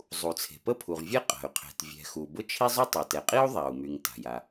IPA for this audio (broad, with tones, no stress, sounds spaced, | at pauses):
zˤ u˩ t͡sʰ e̤˩ p ə˥ pʰ u˩ ʁ vʲ ɛ˥ qʼ a̤˩ y̯ qʰ ɛ̤˩ t vʲ ɛ̤˩ x u˩ b ʊ˥ t͡ʃʰ i˥ zˤ y˥ tˤ e˩ t ɛ˩ qʼ i˥ u̯ ðˤ a˩ u̯ m y˩ ŋ t a̤˩ j a˩